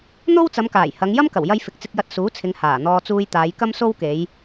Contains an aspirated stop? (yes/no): yes